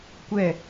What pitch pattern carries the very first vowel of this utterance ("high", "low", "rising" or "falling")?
falling